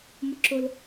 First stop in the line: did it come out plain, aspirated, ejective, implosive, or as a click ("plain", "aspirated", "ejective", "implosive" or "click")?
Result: click